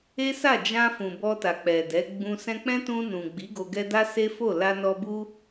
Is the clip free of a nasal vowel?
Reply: no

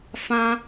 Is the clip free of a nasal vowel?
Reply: no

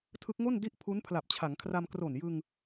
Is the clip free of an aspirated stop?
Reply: no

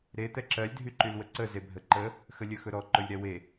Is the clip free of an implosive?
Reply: yes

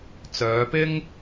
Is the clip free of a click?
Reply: yes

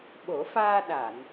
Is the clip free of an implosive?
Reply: no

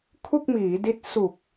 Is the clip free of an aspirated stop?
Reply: no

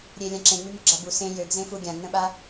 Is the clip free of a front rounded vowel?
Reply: no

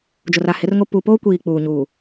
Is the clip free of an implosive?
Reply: yes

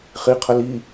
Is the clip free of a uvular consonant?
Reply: no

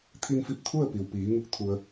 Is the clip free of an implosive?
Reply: yes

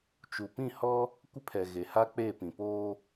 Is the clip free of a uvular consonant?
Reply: yes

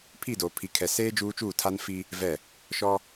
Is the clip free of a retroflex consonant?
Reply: yes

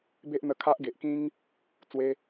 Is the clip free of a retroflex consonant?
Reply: yes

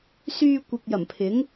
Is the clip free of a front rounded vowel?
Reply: no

